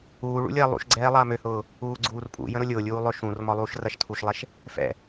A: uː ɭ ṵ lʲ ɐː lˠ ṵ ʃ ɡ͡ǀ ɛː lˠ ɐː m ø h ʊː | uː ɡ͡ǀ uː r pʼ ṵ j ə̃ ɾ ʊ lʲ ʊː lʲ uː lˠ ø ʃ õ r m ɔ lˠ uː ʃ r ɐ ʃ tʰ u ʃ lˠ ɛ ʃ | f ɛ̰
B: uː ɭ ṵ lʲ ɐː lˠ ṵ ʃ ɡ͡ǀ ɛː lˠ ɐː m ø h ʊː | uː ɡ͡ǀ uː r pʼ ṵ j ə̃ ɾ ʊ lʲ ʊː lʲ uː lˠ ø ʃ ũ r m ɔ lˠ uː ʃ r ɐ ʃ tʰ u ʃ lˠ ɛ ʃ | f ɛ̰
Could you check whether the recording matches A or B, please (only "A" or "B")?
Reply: B